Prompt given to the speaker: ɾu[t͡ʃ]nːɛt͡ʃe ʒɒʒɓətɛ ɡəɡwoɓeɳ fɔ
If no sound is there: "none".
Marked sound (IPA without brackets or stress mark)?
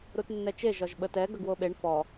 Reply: t